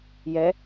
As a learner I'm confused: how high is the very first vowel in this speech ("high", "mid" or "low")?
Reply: mid